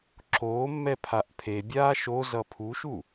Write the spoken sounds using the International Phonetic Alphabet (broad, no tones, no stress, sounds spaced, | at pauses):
ǁ oː mː ɛ pʰ a ʔ pʰ e bʲ aː ʃ o z ʌ pʰ u ʃ u